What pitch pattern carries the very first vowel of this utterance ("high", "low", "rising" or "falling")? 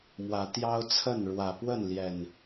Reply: rising